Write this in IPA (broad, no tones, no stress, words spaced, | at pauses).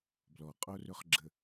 blɔqʼorɵχɡ͡ǁə